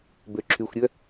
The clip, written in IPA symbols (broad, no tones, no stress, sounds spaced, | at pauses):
b ø ǁʰ y xʷ ɾʲ œ